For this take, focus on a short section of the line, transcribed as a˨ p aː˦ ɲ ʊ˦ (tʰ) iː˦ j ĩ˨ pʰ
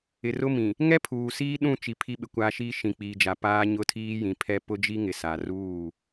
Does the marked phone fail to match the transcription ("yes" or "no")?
no